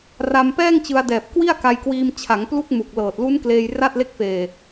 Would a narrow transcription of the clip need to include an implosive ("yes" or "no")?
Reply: no